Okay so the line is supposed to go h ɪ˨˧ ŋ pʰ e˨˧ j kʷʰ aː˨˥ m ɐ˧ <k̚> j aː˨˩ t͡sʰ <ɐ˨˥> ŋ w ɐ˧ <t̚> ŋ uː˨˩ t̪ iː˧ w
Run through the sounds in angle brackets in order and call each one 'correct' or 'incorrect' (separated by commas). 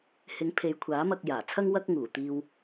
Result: correct, incorrect, incorrect